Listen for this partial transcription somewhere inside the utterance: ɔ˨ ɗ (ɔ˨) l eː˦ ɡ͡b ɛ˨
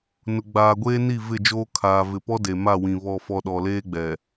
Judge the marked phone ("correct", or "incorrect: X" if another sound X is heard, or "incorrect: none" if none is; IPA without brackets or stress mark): correct